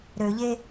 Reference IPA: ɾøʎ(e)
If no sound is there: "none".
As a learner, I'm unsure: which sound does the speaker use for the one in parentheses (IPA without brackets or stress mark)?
e